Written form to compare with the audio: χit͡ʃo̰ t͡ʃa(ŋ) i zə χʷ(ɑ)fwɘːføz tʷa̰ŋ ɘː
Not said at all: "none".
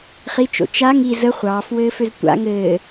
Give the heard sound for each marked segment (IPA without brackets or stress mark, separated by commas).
ŋ, ɑː